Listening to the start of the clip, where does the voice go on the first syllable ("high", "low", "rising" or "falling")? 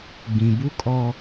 low